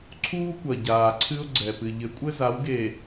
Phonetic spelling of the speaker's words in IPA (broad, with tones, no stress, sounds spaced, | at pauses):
ǀʰ uː˦ kʷ ɐ˨ ɟ aː˨ ǀʰ ɨ˦ ʊ̯ ɡ͡ǀ ɛ˨ p ɨ˨ ʎ ɘ˨˦ kʷʼ ɘ˦ z a˨˦ w ɡ e˨